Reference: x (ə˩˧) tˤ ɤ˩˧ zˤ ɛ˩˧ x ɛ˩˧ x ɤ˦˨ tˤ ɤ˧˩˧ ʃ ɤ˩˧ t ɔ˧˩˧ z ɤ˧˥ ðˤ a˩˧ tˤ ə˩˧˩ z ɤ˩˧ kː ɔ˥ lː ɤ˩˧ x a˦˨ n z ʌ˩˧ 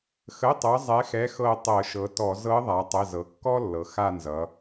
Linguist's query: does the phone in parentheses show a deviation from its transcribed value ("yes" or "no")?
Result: yes